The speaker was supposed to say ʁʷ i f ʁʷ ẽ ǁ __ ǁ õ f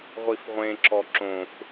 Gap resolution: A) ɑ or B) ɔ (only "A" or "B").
B